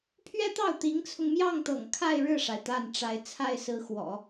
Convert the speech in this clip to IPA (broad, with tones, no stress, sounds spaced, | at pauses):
pʰ ɥ ɛ˥ t̪ ɑ˥˩ ʊ̯ t̪ i˧˥ ŋ t͡sʰ ʊ˧ ŋ m j ɑ˥˩ ŋ t̪ ɤ̰˨˩ ŋ kʰ a˥˧ ɪ̯ ɻ ɻ̩˥˩ ʂ a˩ ɪ̯ t̪ a˥˩ n ʈ͡ʂ a˧˥ ɪ̯ t͡sʰ a˥˩ ɪ̯ s ɹ̩˧˥ x w ɔ̰˨˩˦